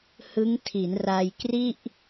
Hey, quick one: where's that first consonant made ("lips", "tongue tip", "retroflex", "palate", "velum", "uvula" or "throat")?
throat